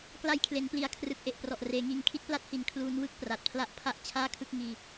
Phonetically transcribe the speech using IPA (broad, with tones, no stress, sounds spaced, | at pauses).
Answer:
k l a˧ j kʰ l e˩˦ n p l i˨˩ a̯ kʰ r ɯ˨˩ k̚ ʔ e˨˩ ʔ p r ɔ˨˩ ʔ r eː˩˦ ŋ iː˦˥ ŋ kʰ i˦˥ t̚ p l a˦˥ t̚ h i˨˩ n kʰ l uː˦˥ n w ɯ˥˩ k̚ p r a˨˩ t̚ pʰ l a˥˩ ʔ pʰ a˦˥ ʔ t͡ɕʰ aː˥˩ kʰ ɯ˥˩ k̚ ŋ iː˧